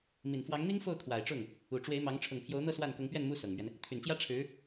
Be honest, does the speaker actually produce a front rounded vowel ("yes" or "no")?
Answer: yes